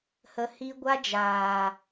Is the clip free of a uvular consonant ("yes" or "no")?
yes